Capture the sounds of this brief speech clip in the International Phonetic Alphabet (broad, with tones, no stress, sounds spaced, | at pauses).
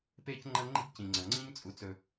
p eː˥ c ŋ͡ǃ ɐ˥ ŋ͡ǃ i̤˥ ɡ c ĩ˩ ŋ͡ǀ ɐ˩ ŋ͡ǀ ĩ˥ ɲ t͡sʼ u˩ t͡s ɵ˩